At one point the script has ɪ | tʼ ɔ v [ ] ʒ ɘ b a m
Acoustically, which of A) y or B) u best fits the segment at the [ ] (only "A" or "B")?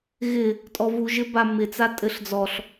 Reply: B